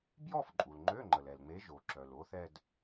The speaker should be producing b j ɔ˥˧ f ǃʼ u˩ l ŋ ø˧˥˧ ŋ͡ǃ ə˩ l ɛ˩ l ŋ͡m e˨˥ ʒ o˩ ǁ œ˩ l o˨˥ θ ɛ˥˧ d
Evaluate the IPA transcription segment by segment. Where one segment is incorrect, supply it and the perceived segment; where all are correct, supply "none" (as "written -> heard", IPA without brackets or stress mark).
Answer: ŋ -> ŋ͡ǃ